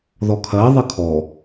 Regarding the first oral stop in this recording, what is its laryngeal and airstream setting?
aspirated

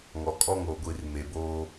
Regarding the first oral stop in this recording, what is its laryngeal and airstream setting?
ejective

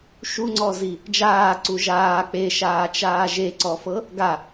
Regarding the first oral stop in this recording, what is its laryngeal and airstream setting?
click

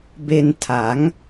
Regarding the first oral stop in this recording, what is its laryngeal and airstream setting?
plain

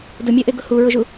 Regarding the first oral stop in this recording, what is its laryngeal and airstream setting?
plain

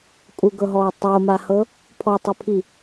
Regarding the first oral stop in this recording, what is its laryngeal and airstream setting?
ejective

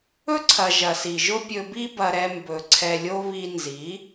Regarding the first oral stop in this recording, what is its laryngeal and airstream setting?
click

